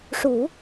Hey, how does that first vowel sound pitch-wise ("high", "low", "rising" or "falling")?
low